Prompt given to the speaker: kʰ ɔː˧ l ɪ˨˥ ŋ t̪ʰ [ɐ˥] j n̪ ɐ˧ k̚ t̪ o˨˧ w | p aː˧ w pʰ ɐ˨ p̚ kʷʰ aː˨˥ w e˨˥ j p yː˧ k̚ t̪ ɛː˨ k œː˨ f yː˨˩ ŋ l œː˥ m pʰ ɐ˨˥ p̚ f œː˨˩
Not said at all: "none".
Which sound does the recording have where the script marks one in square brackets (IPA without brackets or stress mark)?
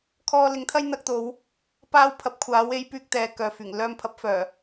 ɐ˥